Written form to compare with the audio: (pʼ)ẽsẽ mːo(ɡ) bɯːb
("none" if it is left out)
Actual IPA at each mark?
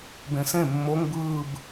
b, ŋ

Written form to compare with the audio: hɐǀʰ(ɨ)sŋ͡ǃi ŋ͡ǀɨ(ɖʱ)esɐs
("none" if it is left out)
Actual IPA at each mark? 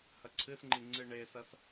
ɨ, ɳ

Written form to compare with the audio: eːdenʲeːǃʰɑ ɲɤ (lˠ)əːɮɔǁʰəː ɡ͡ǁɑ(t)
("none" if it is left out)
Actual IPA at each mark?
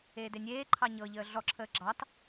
ʎ, t

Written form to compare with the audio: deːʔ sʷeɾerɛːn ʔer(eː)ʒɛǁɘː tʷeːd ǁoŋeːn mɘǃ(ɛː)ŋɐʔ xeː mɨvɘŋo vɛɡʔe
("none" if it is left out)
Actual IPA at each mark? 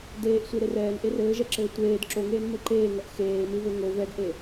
ɘː, eː

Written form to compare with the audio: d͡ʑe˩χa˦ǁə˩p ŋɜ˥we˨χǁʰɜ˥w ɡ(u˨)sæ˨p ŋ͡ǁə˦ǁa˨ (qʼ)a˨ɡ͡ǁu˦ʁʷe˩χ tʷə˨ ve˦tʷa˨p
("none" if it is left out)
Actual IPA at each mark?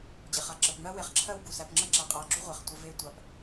u˩, qʼ

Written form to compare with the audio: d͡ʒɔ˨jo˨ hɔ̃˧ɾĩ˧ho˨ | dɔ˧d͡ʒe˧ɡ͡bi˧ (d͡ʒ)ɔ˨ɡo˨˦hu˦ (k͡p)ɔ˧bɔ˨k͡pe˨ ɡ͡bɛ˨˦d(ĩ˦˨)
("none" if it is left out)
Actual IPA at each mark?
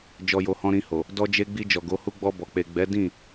d͡ʒ, ɡ͡b, ĩ˦˨

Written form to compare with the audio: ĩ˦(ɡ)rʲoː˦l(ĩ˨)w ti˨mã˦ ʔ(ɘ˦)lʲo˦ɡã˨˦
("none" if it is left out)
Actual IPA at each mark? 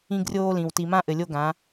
ɡ, ĩ˨, ɘ˨

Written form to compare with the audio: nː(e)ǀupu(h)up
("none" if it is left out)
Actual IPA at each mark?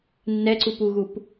ɛ, ɣ

